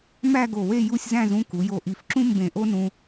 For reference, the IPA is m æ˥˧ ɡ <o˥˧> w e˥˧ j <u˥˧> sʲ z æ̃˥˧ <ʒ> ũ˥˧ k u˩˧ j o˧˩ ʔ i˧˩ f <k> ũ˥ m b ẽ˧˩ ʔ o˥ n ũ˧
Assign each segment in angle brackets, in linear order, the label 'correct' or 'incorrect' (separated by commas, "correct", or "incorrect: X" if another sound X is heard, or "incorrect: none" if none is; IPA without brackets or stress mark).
incorrect: o˧˩, correct, incorrect: z, incorrect: ǁ